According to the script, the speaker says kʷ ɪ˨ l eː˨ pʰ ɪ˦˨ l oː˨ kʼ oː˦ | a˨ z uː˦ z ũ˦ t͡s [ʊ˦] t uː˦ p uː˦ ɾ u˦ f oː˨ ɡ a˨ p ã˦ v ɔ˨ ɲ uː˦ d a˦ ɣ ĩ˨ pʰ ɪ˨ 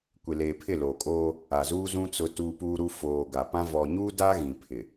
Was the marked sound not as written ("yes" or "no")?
no